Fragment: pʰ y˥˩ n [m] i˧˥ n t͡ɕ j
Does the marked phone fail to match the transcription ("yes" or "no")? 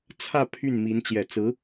no